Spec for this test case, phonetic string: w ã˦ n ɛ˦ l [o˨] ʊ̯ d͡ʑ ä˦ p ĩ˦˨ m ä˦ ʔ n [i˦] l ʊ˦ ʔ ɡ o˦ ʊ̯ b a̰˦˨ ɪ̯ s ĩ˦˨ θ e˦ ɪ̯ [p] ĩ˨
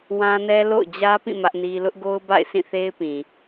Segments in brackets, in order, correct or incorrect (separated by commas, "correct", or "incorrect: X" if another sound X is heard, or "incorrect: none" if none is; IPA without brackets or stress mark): incorrect: o̰˦˨, correct, correct